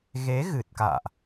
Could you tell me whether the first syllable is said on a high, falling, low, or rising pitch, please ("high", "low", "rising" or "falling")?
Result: rising